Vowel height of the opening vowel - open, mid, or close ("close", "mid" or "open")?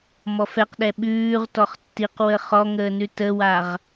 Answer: mid